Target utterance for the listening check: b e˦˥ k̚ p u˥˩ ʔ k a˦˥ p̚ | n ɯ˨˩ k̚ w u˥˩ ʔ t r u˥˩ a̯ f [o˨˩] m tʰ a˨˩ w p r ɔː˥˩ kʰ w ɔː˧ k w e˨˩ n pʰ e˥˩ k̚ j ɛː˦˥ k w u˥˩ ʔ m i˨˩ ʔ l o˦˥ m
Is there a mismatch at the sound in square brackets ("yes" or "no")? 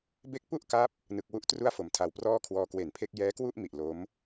yes